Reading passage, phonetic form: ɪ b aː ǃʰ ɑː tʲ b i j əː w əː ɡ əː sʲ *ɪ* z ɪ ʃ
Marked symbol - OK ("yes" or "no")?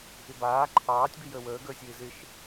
no